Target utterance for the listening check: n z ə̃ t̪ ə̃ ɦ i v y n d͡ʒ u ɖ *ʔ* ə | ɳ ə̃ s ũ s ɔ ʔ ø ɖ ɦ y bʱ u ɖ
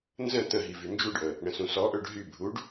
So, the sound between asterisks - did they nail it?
yes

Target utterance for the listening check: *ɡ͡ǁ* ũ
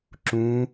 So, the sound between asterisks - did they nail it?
no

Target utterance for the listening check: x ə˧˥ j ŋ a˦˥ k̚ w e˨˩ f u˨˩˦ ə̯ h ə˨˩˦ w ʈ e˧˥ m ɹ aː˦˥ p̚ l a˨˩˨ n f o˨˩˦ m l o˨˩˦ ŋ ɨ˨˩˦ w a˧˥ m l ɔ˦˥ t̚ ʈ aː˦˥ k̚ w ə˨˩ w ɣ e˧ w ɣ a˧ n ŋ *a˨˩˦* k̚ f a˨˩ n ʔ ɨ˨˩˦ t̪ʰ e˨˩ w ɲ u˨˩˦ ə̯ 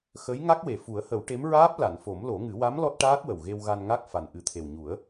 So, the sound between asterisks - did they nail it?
no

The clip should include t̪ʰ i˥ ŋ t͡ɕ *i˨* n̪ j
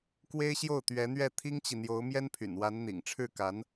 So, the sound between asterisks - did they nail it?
yes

